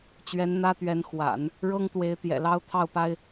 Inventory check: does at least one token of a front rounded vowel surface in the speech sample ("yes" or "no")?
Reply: no